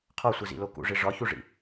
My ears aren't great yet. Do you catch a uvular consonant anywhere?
yes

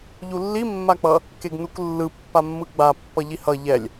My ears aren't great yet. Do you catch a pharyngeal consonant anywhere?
no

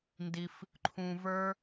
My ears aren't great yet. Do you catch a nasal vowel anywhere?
yes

